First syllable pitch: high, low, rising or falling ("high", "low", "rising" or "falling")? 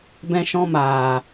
high